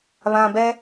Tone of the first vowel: low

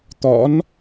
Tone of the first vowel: rising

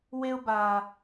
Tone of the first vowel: high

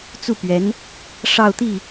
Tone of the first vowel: falling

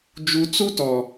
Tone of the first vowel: low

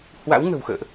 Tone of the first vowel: rising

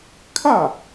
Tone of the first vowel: falling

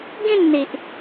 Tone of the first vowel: falling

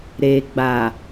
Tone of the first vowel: low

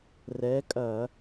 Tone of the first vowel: rising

